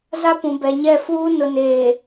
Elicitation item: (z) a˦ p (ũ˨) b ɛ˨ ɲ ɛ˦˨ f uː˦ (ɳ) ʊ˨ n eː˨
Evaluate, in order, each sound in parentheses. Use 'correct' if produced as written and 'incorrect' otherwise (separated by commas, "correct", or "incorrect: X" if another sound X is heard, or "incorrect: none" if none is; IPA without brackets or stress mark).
correct, correct, incorrect: n